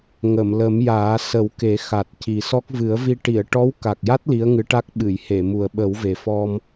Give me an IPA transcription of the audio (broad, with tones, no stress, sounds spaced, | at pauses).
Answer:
ŋ ə˨˩˨ m l ə˨˩˦ m j aː˨˩˦ s ə˨˩˦ w k e˨˩˦ x a˨˩ t̚ c i˨˩ s ɔ˦˥ k̚ v ɨ˨˩˦ ə̯ v i˧ ʈ i˨˩˨ ə̯ ʈ ɔ˧˥ w k a˨˩ k̚ j a˦˥ t̚ l i˧˥ ə̯ ŋ ɨ˧˥ ʈ a˦˥ k̚ ɓ ɨ˨˩˨ j h e˨˩˨ m u˨˩ ə̯ ɓ ə˨˩˦ w v e˨˩ f ɔ˧ m